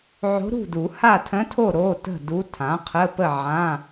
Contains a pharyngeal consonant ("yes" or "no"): yes